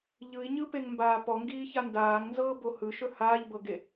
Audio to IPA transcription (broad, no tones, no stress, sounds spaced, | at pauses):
ʎ ɯ i̯ ɲ ɯ p e ŋ m b aː p ɔ ŋ ɡ iː ç a n d aː ŋ n z ɤː b o h ɯ ʃ ɵ h aː ʎ b ɤ ɡ e